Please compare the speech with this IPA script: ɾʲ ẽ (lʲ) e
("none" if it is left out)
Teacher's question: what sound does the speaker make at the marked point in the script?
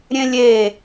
lʲ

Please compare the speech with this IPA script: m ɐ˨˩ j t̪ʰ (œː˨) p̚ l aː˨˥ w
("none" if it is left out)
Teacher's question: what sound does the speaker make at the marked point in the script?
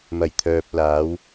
œː˨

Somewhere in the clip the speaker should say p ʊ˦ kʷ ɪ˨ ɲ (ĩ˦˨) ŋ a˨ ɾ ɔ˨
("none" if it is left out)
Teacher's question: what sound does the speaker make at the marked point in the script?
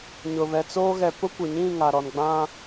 ĩ˦˨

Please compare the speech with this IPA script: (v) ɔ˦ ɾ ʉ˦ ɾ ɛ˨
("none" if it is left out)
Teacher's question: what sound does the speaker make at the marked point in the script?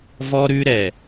v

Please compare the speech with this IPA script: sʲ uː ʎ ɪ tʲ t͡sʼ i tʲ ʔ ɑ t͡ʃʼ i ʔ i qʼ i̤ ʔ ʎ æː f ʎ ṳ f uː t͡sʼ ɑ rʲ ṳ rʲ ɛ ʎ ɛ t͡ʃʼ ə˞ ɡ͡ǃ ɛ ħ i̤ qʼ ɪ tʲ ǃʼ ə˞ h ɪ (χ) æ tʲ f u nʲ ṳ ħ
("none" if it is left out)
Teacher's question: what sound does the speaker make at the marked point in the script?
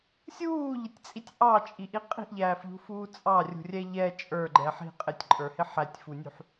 ħ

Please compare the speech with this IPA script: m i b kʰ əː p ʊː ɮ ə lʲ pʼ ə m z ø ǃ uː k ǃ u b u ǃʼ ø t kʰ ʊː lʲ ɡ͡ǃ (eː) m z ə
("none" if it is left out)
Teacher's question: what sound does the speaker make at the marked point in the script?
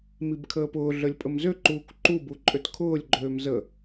øː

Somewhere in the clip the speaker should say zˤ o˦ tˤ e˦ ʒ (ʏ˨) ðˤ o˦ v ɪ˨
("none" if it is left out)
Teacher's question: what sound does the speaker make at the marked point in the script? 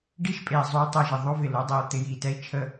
ɪ˨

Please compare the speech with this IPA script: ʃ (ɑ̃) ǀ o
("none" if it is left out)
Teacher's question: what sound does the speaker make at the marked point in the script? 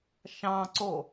ɑ̃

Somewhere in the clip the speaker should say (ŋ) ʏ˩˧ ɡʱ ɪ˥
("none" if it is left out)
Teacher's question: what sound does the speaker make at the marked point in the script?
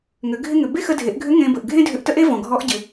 ŋ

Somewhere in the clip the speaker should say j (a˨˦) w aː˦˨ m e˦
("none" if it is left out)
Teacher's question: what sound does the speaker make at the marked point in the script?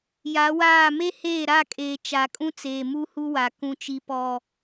a˨˦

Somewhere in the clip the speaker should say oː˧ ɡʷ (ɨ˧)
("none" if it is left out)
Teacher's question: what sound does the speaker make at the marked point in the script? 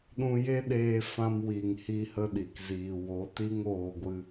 ɨ˧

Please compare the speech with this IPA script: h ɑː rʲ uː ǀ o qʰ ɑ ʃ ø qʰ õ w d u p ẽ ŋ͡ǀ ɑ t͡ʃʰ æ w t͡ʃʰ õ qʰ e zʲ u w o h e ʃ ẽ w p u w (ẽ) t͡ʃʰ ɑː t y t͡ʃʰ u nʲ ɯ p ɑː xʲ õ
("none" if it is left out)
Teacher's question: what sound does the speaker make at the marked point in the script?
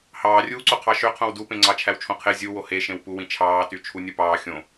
ĩ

